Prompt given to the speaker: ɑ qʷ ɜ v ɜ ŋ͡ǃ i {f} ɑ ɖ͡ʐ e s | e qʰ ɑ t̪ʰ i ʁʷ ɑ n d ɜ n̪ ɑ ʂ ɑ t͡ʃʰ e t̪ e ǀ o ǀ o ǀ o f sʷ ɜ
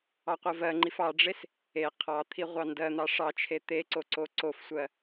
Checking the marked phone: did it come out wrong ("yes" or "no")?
no